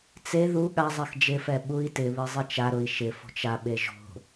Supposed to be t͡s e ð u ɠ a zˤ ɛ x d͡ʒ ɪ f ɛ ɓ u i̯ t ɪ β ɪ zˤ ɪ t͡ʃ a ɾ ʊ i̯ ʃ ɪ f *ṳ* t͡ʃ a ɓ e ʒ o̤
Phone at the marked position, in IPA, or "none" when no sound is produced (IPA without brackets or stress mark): o̤